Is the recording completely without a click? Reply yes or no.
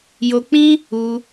yes